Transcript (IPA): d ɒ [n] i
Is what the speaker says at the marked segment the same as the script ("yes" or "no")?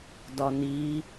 yes